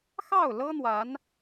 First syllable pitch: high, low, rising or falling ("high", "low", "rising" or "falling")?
falling